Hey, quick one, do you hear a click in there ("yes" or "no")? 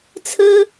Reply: no